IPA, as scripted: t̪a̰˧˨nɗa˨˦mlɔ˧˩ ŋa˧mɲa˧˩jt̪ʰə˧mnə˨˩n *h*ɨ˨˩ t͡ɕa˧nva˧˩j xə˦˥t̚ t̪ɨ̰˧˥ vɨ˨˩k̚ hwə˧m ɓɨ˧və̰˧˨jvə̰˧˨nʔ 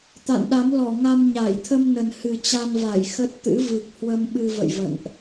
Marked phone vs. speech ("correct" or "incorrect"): correct